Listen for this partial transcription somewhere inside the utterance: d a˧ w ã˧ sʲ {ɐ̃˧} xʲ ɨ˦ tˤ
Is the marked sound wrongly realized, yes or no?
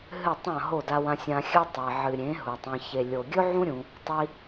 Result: yes